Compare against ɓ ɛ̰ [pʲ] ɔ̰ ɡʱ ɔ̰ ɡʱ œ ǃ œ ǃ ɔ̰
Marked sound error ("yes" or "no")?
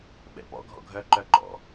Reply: yes